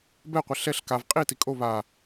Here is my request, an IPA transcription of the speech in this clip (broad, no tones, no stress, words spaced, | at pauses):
bɛqʷɛ ɬɛɬ kav qʼiti kʼo βa